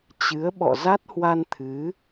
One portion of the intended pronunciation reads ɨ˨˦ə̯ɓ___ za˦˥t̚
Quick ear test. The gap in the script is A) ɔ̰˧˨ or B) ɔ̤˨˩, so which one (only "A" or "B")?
A